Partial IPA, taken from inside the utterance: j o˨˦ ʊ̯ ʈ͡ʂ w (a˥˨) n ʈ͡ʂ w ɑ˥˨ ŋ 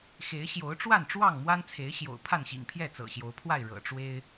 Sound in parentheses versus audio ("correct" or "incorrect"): correct